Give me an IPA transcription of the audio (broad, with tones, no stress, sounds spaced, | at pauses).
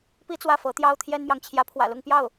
p i˥ t͡s w ä˥˩ f ɤ˧˥ t̪ j ɑ˥ ʊ̯ t̪ʰ j ɛ˥ n m j ɑ˨ ŋ t͡ɕʰ j ä˧˥ pʰ w ä̰˨˩ l ʊ˥˧ ŋ p j ɑ˥˩ ʊ̯